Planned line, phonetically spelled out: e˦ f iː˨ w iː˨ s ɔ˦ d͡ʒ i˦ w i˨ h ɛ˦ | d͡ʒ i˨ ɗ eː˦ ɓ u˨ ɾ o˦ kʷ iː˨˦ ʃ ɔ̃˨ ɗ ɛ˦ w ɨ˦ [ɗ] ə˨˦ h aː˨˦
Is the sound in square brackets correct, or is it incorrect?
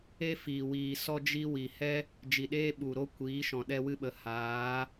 incorrect